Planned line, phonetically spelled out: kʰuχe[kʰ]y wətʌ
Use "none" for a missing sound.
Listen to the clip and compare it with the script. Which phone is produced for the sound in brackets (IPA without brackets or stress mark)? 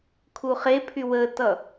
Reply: pʰ